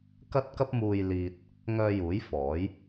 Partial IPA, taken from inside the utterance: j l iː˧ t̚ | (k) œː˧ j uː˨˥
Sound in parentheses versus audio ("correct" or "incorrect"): incorrect